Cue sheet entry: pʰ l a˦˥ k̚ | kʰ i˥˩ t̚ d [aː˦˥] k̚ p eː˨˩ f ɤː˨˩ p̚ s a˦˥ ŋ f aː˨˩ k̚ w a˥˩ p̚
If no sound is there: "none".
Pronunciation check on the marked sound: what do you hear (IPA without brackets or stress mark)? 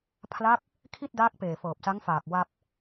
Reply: aː˦˥